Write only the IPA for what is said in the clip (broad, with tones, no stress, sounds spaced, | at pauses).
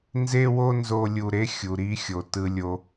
n z e˦ w o˦ n z o˧ lʲ u˧ ɾ e˦ xʲ u˨ ɾ i˧ xʲ o˨ t ɯ˧ lʲ o˧